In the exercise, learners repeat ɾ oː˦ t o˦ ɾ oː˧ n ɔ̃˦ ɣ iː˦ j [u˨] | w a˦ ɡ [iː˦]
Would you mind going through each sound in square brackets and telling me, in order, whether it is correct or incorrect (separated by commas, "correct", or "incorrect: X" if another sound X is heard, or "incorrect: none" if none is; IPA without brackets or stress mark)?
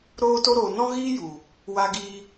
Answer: correct, correct